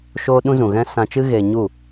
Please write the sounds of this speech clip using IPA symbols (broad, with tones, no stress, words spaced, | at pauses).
ʃoː˦ ɗũ˦zũ˨ɣɛ̃˦ sã˧t͡ʃɨ˦ ɣe˧ɲu˦˨